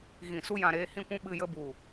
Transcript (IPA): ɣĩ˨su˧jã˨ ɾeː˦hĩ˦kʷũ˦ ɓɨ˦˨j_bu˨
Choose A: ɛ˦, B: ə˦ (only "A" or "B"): B